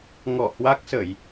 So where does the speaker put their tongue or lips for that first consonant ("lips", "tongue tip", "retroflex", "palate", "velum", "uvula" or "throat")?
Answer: velum